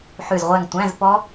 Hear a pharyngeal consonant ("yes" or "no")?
yes